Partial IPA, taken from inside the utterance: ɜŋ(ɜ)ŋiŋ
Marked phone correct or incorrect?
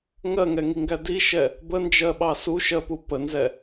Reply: incorrect